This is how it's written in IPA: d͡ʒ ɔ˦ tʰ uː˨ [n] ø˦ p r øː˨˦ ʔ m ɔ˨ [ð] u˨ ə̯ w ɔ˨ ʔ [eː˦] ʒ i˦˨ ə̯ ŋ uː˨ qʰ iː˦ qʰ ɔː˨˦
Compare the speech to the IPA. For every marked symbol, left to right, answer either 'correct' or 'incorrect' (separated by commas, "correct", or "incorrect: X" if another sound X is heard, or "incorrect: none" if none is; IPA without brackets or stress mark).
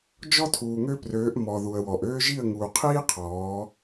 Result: incorrect: ŋ, correct, incorrect: øː˦